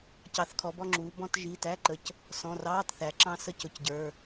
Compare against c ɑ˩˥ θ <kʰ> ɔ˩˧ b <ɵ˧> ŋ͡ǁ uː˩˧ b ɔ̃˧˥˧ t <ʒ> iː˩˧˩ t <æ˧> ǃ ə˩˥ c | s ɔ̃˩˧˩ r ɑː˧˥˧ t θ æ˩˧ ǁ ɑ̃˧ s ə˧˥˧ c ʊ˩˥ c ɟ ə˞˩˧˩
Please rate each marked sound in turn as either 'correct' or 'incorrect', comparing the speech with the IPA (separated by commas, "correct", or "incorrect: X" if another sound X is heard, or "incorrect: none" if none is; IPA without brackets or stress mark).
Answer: correct, incorrect: ɔ˧, correct, incorrect: æ˧˥˧